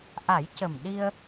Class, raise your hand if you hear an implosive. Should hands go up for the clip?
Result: yes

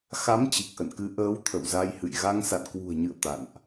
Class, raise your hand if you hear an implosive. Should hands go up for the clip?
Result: no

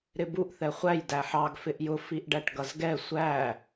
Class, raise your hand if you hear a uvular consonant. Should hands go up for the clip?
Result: yes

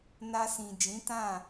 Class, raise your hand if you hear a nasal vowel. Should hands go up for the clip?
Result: yes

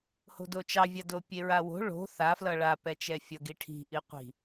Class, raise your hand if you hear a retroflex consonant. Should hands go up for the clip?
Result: yes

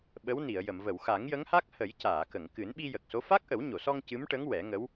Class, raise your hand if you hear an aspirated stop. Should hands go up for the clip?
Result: no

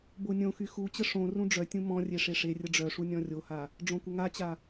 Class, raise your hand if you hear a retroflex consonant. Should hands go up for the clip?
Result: yes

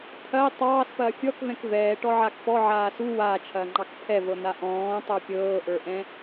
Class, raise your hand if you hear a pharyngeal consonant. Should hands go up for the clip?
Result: yes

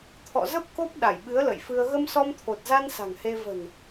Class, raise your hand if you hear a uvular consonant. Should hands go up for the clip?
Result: no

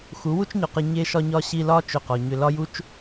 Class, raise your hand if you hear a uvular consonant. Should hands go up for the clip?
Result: yes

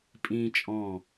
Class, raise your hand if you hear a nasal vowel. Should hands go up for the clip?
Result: yes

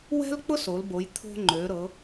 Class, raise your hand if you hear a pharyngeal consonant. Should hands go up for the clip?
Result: no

